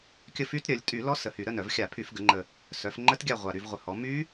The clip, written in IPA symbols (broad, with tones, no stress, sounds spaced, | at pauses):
kʲ ə˦˨ f y˦˥ t ɾʲ œ˩˧ lʲ tʼ y˧˩˧ l ɔ˦˥ s ə˨˩ h y˧˩˧ ɾ ə˦˨ n œ˧˩˧ v xʲ a˧˩˧ pʰ y˧˩˧ f ɡ ə˩˧ ŋ͡ǃ ə˨˩ | s œ˩˧ f ŋ͡ǃ ə˦˥ t ɡʲ a˦˨ ʁʷ a˨˩ ɾ y˦˨ v ʁʷ ə˨˩ h ɔ˩˧ m y˦˥